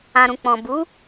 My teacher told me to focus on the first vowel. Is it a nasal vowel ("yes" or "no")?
yes